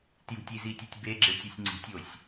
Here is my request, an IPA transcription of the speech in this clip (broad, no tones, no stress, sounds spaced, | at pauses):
t j ṳ tʲ i z i tʲ e tʲ b e ɡ͡ǁ e tʲ u sʲ ŋ͡ǀ i̤ tʲ o sʲ